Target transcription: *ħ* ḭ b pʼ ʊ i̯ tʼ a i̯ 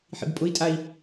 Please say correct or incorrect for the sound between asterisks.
correct